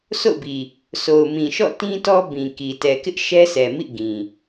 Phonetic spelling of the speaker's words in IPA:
sʰ o̰˦˨ ʊ̯ b i˨ | s o˨ ʊ̯ m ĩ˨ ʃ ɔ̰˦˨ t ĩ˦ t ɔ˦ b ĩ˨ k i˨ t ɛ˨ k ɪ˦ ʔ ʃ ɛ˦ s ɛ˨ m ḭ˦˨ ɡ ĩ˨

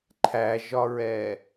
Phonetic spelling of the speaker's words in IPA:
ǃʰ æ ʒ ɒ ɹ ɛ

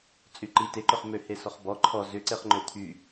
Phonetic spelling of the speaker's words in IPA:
t͡sʼ y ǃ i t e ǃ ʏ χ m ø h e s ɔ χ b ɔ ǃʰ ɔ z ʏ ǀ e χ ŋ͡ǃ ø t̪ʰ y

